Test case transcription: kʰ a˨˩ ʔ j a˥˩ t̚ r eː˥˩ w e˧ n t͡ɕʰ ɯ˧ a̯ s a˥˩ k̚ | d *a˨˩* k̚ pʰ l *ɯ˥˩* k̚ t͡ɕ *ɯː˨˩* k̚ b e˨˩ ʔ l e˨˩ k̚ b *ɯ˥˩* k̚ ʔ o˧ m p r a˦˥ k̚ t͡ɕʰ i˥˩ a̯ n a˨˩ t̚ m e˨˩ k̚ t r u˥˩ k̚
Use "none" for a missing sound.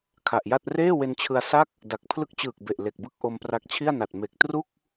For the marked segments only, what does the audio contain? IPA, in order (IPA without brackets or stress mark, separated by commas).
a˨˩, ɯ˦˥, ɯː˨˩, ɯ˥˩